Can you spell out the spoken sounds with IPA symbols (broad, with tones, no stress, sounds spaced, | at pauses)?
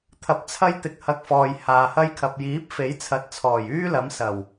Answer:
t̪ʰ ɐ˨˥ p̚ t͡sʰ ɐ˥ j t̪ ɪ˧ k̚ h ɐ˧ k̚ f ɔː˨ j h aː˨ h ɐ˥ j kʰ ɐ˨ p̚ j iː˨˥ p̚ f e˨˥ j t͡sʰ ɐ˨˥ t̚ t͡sʰ ɔː˨˩ j yː˥ l ɐ˨˥ m s ɐ˨˩ w